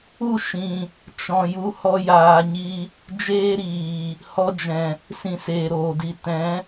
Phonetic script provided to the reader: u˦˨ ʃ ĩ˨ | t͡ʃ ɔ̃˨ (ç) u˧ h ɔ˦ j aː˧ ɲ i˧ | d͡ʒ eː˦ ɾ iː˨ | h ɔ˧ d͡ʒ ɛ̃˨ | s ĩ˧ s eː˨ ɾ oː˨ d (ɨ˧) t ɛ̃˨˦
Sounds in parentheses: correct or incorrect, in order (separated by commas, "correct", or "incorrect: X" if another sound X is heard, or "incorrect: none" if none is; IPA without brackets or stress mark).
incorrect: j, incorrect: i˧